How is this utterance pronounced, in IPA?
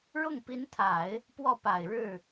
ɻ ʊ˥˩ ŋ p i˧˥ n t̪ʰ a˨˩˦ ɪ̯ | p w ɔ˥˩ p a˨˩ ɪ̯ ɻ ɻ̩˥˩

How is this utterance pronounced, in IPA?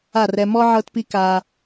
a˦˨ r ɛ˧ m ɔ˦ ʕ ɤ˦ t p i˦ k a˧

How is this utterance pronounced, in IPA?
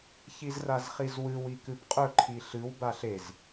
ç i z r a z χ i z w ɨ w i k ɨ b qʼ ɵ ǃʰ i ɬ ɨ w b a ɬ e z

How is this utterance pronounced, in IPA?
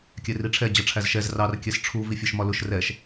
kʲ ɛ r i ʈ͡ʂʰ ɛ d͡ʑ ʌ ʈ͡ʂʰ æ z ʃ ɛ z r ɑ r kʲ ɛ s ʈ͡ʂʰ u v i fʲ ɒ ʃ m ɒ l ʊ ʃ r ɛ ʃ

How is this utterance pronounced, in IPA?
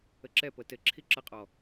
ə ǁ ɛ p ɤ t ɘ ǁʰ i ǁ ə qʼ ɔ

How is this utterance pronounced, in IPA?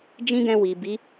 d͡ʒ ĩ˦ ɡ ɛ̃˧ w i˨ b i˨˦

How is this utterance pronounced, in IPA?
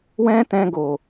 w ɛ̃˦ t ɛ̃˧ ɡ o˨

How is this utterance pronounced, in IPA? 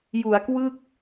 j u˩˦ a̯ k w ɯ˥˩ k̚

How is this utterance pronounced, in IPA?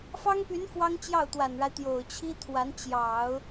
f ɑ˥ ŋ p y˧˥ n f w ɑ˥ ŋ t͡ɕ j ɑ˥˩ ʊ̯ t̪ w a˨˩ n ɻ a˦ ɪ̯ t̪ j o˨˩ ʊ̯ t͡ɕʰ i˥ t̪ʰ w a˧˥ n t͡ɕ j ɑ˨˩˦ ʊ̯

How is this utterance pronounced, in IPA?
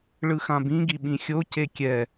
ɭ ɯ x ã b ĩ ɡ i ɓ ĩ xʲ o c e kʲ ɛ

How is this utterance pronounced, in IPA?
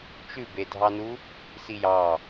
t͡ʃ ʉ b e dʱ ɑ n u | s i j ɑ

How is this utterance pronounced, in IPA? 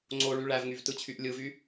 ŋ͡ǀ o ɭ y ɭ æ v ŋ y v t ɯ t͡ɕʰ y ʔ lʲ ɯ v y

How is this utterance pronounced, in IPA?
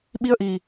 ɓ i˧ ə̯ ʔ i˨˩

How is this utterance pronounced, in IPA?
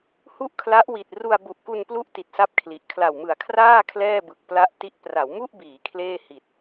h u˥˩ ʔ kʰ l a˦˥ ʔ w i˨˩ t̚ r u˧ a̯ b u˨˩ ʔ k u˧ n p l u˦˥ ʔ t i˨˩ t̚ s a˥˩ p̚ kʰ l i˨˩ ʔ kʰ l a˨˩ w m ɯ˨˩ a̯ kʰ r aː˥˩ kʰ l ɛː˥˩ b ɯ˨˩ k̚ p l a˥˩ ʔ t i˦˥ ʔ p r a˩˦ w m u˥˩ ʔ b iː˩˦ kʰ l eː˥˩ h i˨˩ t̚

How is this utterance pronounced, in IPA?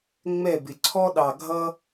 ŋ͡m ɛ˥˨ b ɪ˨˩ ǀʰ ɔ˦ ɗ ɑ˨˩ ɡʱ ʌ˦

